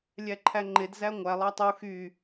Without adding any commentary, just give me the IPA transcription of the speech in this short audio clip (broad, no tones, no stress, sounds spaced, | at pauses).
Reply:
lʲ æ ǃʰ æ ŋ͡ǃ e d z æ ŋʷ æ lˠ ɑ tˤ u x y